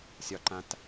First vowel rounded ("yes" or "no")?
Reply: yes